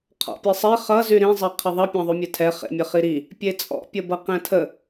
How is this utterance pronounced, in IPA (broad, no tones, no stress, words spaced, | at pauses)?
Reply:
qʰɔ̰pʲesˤe χʌ zyɾĩ zˤeqʰəðˤʌ pʲɑ̃ðˤymʲetʰɛ χḛmʲəχiɾi | pʲet͡sʼɔ̰ pʲəbʌqɛ̃tʰə